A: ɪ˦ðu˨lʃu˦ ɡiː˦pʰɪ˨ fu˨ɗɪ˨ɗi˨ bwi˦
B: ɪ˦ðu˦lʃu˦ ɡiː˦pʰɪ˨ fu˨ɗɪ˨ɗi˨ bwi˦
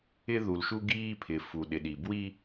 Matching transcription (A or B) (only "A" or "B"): A